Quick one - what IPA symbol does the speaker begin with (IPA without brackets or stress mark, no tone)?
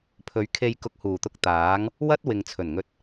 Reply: pʰ